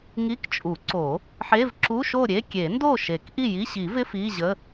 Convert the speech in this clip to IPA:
ŋ i˧˥˧ k t͡ʃʼ u˨˩˦ ǀ o˨˩˦ | ħ e˧˥˧ v ǁ u˧˥˧ ʃ o˥˨ ɾʲ e˧˥˧ kʲ e˨˩˦ n d o˥˨ ʃ e˨˩˦ k ʔ i˥˨ j i˧˥˧ ɕ i˨˩˦ v ɪ˧˥˧ f i˧˥˧ ʑ ə˧˥˧

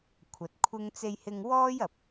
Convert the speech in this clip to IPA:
kʷʰ ɐ˨ t̚ kʷʰ ɪ˥ ŋ t͡s e˧ j h ɪ˧ ŋ w ɔː˥ j ɐ˨ p̚

